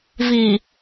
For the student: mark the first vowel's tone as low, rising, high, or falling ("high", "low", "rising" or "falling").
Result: low